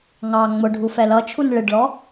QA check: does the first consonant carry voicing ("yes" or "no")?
yes